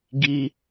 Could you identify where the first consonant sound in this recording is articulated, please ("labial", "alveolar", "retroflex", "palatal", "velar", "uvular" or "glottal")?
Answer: velar